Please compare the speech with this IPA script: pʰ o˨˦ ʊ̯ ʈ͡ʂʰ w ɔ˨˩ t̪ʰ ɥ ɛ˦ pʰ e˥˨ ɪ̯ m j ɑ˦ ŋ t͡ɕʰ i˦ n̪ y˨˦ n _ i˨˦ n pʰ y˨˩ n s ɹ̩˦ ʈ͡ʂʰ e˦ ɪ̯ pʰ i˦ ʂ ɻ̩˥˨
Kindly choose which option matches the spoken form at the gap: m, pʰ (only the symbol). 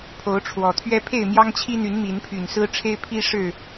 m